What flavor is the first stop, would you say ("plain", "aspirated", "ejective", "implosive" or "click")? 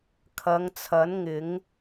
aspirated